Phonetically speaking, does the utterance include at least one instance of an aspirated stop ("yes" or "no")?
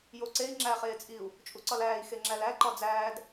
no